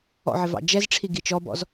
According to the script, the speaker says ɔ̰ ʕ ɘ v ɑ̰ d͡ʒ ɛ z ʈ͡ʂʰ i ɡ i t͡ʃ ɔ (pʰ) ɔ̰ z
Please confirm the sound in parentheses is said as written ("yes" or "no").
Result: no